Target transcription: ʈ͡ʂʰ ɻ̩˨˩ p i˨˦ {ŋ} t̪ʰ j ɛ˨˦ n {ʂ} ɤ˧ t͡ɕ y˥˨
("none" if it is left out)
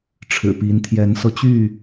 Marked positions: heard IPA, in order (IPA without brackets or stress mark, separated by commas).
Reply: n, s